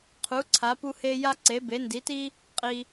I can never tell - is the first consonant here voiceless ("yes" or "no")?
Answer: yes